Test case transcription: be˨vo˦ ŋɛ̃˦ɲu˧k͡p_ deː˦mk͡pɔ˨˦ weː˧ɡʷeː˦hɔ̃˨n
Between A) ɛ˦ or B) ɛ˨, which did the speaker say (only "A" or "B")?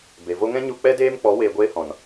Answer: A